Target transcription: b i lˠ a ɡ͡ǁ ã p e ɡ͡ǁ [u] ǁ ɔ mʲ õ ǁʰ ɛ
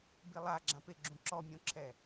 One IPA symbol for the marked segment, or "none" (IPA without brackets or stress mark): ũ